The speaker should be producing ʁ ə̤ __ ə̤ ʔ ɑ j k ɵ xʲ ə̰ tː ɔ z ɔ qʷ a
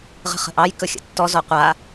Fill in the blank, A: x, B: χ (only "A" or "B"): B